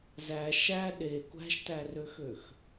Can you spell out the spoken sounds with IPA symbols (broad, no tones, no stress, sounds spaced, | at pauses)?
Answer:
z æ ʃ æ ɗ e kʷ æ̤ ʃ t æ r ø x ø x